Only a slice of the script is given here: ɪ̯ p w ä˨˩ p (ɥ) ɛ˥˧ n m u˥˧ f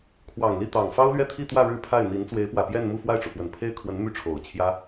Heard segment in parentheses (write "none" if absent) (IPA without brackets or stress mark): j